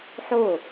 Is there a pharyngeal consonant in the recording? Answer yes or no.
yes